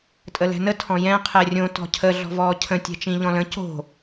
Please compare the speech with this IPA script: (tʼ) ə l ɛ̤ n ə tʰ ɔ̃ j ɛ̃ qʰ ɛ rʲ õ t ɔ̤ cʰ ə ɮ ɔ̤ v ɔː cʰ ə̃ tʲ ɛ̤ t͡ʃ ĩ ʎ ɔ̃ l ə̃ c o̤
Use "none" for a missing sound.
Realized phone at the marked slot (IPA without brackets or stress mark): tʼ